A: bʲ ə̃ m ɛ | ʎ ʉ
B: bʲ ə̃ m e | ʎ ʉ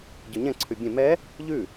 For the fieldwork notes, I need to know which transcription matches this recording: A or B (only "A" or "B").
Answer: A